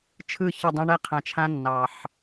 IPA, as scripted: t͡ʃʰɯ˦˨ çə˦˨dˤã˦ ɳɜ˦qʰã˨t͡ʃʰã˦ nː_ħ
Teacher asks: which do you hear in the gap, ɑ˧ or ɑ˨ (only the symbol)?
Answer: ɑ˨